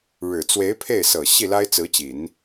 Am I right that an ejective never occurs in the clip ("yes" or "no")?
yes